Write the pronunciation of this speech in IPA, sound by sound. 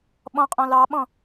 ɓ ɔ̃ qʼ ɔ̃ l ɑ ɓ ɔ̃

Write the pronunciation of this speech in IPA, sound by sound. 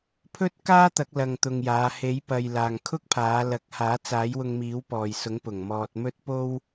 pʰ ɵ˥ t̚ k aː˥ t̪ ɐ˨˥ k̚ l ɐ˧ ŋ t̪ ʊ˧ ŋ j aː˨˧ h e˨˥ j p ɐ˨ j l aː˨ ŋ kʰ ʊ˥ k̚ pʰ aː˨˧ l ɐ˨˥ k̚ h aː˨˥ t͡s aː˨˥ j w ʊ˧ ŋ m iː˨˥ w p ɔː˨ j s ʊ˨˥ ŋ p ʊ˨˩ ŋ m ɔː˧ t̚ m ɵ˥ t̚ p o˥ w

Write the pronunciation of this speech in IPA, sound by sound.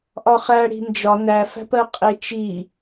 ʔ ɒ χ æ ɽ i̤ n d͡ʒ ɒ n æ f æ̤ p ɜ qʼ e t͡ʃ i

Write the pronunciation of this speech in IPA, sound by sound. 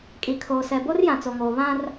kʼ i˨ kʰ oː˨ s ɛ˨ b o˦ r j ã˨ t͡s o˨ ŋ oː˨ β ã˦ r

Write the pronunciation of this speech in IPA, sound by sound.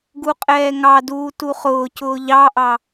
ɡ u qʼ ɛː ŋ ɑ d uː t u χ ʊː c ʊː ʎ ɑ ʔ ɑ

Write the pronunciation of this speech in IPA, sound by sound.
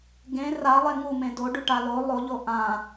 ɡ ẽ r a lˠ e ŋ u m ẽ d o ɖ y ʈ a l o lˠ o ʎ o ʔ ã

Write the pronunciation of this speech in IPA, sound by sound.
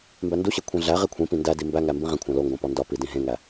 m b æ n d u ɕ e kʷʰ ẽ ɮ æ ʁ i kʷʰ ĩ p ĩ n d æ d i m b æ ŋ æ m b ĩ ʁ ẽ kʷʰ æ̃ l o ŋ ɡ õ p ɒ n d ɒ p i d ĩ ɦ ẽ ŋ æ

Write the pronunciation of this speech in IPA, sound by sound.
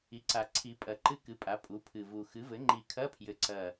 i˩˥ ǀ a˨˩ ǀʰ i˨˩˦ pʼ ɐ˨˩˦ ǃ ɨ˦˨ k ɨ˩˥ pʼ a˩˥ pʼ u˩˥ pʰ ɨ˨˩ v u˨˩ x ɨ˩˥ v ɘ˩˥ ŋ͡ǃ i˨˩˦ kʰ ɐ˧˥˧ pʰ j ɘ˨˩ ǀ ɐ˨˩

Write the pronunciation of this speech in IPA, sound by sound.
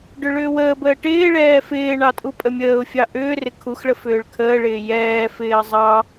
ɖ ʏ ɭ ʏː w əː b əː ʈ ɪː ɭ ɛː f ɪː ɳ ɑ tʼ u pʼ ə mʲ əː ʊ̯ fʲ ɑ ʔ ʏː r ɪ kʰ u x ɭ ə f ʏː ɭ kʰ əː ɭ ɪː j ɛː f ɪː ə̯ zˤ ɑ

